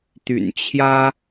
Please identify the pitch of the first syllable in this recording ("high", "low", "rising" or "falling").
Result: low